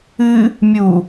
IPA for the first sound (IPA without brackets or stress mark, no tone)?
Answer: ɨ